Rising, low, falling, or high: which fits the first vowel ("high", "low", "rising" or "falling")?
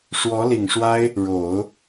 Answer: rising